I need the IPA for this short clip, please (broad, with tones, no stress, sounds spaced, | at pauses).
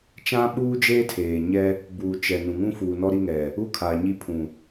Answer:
t͡ʃ ã˦ ɓ uː˦ d͡ʒ eː˦ tʰ eː˨ ɲ ɛ˦ | b uː˨ t͡ʃ ɛ˨ n ũ˨ ŋ ũ˦ f uː˨ n ɔ˦ ɾ i˦ ŋ ɛ˨ | u˦ kʰ aː˨ ɲ i˦ pʰ ũ˨